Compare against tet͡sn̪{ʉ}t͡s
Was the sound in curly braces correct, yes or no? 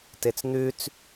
yes